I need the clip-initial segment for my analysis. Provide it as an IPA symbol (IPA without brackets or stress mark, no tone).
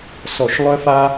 s